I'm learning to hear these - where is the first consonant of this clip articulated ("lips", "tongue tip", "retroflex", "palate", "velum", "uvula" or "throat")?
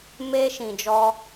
lips